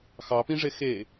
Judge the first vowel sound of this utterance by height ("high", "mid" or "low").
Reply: low